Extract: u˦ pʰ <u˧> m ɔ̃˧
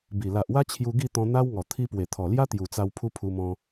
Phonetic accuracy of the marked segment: correct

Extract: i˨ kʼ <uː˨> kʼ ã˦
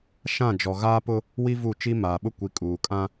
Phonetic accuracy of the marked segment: correct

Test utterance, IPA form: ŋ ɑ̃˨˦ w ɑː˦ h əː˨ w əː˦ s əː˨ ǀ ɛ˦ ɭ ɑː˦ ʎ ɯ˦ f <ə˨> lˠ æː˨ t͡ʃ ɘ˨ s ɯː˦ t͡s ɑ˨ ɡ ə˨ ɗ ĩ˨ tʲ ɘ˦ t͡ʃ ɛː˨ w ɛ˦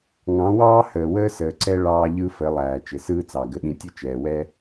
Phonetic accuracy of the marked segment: incorrect: ə˨˦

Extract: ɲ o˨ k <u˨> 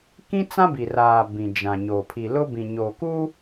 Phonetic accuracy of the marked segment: incorrect: u˦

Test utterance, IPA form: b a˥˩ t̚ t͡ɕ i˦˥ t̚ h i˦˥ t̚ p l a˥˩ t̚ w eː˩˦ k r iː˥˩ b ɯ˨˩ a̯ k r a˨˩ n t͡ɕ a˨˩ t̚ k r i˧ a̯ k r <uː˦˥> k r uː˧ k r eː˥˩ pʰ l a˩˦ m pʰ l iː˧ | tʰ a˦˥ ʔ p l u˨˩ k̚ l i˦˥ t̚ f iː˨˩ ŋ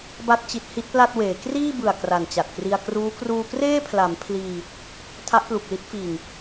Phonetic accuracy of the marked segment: correct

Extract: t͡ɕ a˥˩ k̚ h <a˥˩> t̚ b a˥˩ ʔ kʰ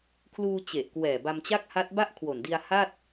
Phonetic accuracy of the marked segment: incorrect: a˦˥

